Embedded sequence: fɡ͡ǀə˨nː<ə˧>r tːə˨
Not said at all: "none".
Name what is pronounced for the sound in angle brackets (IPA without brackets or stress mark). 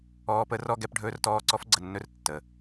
ɵ˧